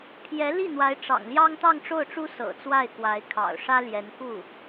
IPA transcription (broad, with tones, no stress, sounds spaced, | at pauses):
pʰ j ɛ˧˥ l i˥˩ n̪ w a˧˥ ɪ̯ ʈ͡ʂ ɑ̰˨˩ ŋ l j ɑ˥ ŋ t̪ ɑ˥˧ ŋ ʈ͡ʂ o˥˩ ʊ̯ ʈ͡ʂ u˥ s ɤ̰˨˩ t͡s w a˥˩ ɪ̯ k w a˧˥ ɪ̯ kʰ ɑ̰˨˩ ʊ̯ ʂ ä˥ l j ɛ˧˥ n k u˥˩